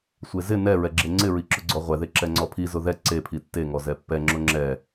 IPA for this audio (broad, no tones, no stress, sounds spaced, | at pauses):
sʷ e z ɪ n ɛ ɹ ɛ ɡ͡ǁ e ŋ͡ǀ ɪ ɹ i ǁ ʊ ɡ͡ǀ ɔ ʁʷ ɛ ð e ǁ ɛ ŋ͡ǀ ɔ pʰ i z ʊ ð ɛ ǀ e pʰ i tː e ŋ ɔ z ɛ pː ɛ ŋ͡ǁ ʊ ŋ͡ǁ ɛ